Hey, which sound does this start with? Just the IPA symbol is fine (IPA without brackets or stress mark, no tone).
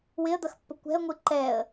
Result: w